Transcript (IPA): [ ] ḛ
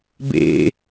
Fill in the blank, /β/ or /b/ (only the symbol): b